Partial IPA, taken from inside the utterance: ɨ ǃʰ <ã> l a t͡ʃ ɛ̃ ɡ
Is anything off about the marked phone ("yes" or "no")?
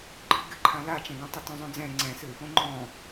no